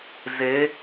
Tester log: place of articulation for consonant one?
alveolar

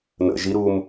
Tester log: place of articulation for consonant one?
alveolar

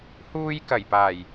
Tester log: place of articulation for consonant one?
glottal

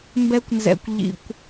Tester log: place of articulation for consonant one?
labial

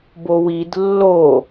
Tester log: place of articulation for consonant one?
labial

